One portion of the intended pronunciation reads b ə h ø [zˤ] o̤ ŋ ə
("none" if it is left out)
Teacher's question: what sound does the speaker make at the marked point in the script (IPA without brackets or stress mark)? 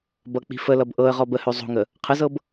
zˤ